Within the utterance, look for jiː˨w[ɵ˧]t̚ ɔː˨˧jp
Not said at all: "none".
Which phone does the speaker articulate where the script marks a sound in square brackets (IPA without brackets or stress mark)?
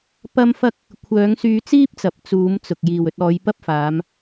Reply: ɵ˧